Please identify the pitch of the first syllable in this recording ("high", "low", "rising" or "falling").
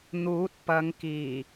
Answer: rising